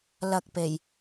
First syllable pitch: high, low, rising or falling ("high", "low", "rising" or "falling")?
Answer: low